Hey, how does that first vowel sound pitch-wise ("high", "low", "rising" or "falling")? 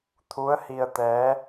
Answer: rising